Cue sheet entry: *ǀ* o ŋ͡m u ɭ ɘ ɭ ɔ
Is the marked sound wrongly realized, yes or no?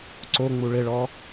no